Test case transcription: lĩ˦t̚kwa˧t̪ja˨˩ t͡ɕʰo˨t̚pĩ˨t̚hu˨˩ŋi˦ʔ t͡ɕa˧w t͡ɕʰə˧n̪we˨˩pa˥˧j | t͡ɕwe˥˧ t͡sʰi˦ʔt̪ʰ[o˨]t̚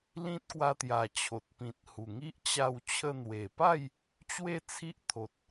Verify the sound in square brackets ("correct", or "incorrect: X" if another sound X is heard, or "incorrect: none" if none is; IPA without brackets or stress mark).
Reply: correct